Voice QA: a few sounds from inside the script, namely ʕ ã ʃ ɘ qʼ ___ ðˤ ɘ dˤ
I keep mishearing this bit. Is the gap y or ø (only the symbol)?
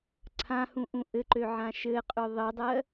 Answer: ø